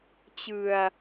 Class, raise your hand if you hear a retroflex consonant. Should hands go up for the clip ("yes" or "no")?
no